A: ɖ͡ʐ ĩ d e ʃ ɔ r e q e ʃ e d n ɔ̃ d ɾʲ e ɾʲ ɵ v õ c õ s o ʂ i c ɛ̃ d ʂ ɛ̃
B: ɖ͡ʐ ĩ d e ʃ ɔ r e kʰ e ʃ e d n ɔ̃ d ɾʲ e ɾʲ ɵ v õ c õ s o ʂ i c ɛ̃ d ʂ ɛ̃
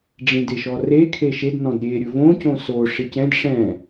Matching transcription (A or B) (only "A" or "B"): B